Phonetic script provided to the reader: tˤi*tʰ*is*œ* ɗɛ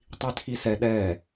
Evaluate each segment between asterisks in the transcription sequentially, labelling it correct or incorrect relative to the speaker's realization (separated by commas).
correct, incorrect